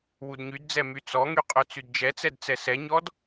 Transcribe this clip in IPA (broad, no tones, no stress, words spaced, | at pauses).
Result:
wudɲydd͡zɛ myt͡sɔŋy qʼœt͡sydd͡ʒɛt͡sɛd t͡sɛsɛɲɔd